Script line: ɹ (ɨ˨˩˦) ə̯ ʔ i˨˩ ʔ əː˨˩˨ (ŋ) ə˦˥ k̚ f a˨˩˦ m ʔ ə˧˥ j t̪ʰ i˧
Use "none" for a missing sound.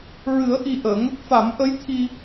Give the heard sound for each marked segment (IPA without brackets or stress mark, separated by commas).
ɨ˨˩˦, ŋ